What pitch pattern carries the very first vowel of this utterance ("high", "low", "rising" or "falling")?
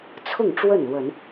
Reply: falling